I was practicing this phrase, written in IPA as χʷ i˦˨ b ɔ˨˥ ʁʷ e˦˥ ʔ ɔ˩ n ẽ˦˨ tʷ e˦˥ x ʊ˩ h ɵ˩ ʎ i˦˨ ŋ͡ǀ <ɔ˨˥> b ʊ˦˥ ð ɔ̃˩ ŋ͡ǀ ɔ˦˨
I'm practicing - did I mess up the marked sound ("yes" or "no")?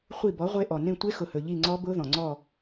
yes